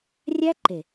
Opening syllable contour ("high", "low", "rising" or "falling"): high